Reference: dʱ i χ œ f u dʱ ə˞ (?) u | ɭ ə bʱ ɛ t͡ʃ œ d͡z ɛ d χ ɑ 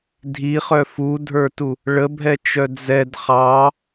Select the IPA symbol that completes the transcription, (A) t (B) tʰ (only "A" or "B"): A